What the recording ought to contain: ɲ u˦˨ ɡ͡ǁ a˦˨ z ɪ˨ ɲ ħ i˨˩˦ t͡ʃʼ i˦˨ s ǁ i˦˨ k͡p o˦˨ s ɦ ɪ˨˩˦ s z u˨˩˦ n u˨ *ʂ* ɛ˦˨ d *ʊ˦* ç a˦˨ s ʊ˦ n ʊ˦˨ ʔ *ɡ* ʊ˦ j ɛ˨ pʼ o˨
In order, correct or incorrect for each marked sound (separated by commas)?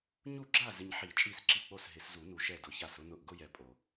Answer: incorrect, incorrect, correct